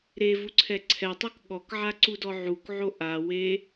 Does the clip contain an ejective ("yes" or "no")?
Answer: no